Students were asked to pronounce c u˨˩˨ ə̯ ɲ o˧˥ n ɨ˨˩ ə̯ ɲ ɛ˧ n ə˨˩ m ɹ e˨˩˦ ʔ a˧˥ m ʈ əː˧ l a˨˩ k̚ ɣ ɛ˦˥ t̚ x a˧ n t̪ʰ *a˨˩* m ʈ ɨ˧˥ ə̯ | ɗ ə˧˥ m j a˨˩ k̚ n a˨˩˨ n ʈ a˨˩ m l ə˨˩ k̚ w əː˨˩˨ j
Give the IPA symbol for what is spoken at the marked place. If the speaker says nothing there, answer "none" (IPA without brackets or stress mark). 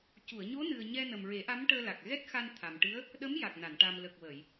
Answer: a˨˩